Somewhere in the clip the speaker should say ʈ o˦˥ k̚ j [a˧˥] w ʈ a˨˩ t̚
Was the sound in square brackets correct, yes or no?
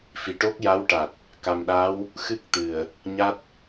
yes